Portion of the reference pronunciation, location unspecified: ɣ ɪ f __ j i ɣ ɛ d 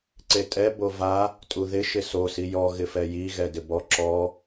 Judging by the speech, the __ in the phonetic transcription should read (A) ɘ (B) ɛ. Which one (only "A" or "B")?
B